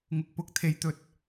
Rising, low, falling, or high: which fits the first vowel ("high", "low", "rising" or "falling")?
rising